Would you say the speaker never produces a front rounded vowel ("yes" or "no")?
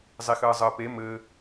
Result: yes